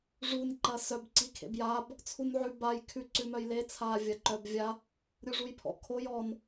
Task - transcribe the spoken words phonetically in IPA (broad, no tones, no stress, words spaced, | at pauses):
ʐun ǃɐsœb ǀikʰḛbjab | t͡sʰunʕʉ baj kʰʉ ǀʉmœjle t͡sʰaːvʲɐǃœbvʲa | ɾʲuʐujpʰɔ̰kʰoj ɔn